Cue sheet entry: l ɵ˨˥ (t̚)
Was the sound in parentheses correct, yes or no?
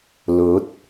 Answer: yes